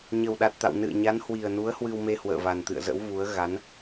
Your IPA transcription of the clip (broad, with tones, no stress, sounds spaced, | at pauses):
ɲ ə˨˩ w ɗ a˨˩ t̚ t̪ a̰˧˨ w n ɨ̰˧˨ ə̯ ɲ a˨˦ n h w i˨˩ ə̯ n u˨˦ ə̯ h w ɨ˧ w m e˧ h w ə̰ː˧˨ v a˨˩ n t̪ ɨ̰˧˨ ə̯ z ə̰˧˥ w v u˨˦ ə̯ ɣ a˨˦ n